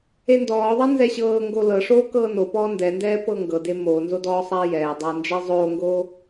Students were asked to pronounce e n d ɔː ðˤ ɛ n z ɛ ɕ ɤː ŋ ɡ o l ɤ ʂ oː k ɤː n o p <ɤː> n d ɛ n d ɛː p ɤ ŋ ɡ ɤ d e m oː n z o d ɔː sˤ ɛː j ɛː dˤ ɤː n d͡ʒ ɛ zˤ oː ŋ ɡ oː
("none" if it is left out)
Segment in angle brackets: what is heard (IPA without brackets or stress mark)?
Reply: ɔː